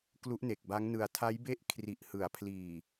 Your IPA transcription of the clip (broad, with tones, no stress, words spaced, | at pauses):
klu˦˥ʔne˨˩k̚ba˦˥ŋnɯ˧a̯ tʰa˦˥jbe˥˩ʔ kʰri˨˩ʔ hɯ˩˦a̯ pʰliː˨˩